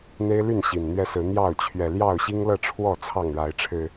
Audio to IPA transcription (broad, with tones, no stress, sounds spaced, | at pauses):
n̪ e˦ ɪ̯ l y˥˨ n ɕ i˨˩ n n̪ ɥ ɛ˦ s ɹ̩˨˦ n̪ j ɑ˥˨ ʊ̯ t͡ɕʰ ɥ ɛ˨˩ l j ɑ˥˨ ʊ̯ ɕ i˦ ŋ l ɤ˥˨ ʈ͡ʂʰ w ɔ˥˨ t͡sʰ ɑ˥˨ ŋ ɻ a˨˦ ɪ̯ ʈ͡ʂʰ ɻ̩˨˩